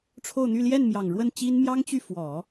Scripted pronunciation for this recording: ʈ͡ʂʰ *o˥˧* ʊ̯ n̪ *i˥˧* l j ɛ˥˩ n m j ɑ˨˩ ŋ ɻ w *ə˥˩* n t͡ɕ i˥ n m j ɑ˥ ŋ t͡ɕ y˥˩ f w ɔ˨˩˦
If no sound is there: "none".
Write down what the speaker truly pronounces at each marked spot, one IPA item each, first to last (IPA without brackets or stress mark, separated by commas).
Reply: o˥˧, y˥˧, ə˥˩